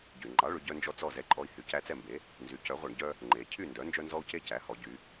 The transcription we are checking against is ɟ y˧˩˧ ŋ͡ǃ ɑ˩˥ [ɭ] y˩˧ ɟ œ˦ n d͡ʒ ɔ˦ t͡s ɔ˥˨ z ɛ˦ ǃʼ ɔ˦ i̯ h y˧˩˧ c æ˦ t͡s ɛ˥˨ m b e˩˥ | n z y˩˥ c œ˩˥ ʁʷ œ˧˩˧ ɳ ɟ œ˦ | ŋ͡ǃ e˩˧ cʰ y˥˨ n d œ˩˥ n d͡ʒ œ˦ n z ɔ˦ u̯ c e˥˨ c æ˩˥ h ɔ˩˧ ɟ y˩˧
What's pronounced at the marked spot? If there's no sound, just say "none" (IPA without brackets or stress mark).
ɭ